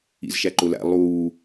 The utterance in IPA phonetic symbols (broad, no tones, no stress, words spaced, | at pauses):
ḭzʃæǃʊlæ̰ lˠuː